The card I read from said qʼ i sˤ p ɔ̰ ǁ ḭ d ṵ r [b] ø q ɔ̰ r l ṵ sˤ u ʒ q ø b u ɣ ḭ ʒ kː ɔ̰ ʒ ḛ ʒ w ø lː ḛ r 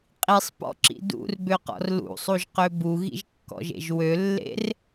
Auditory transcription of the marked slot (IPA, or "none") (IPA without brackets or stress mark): b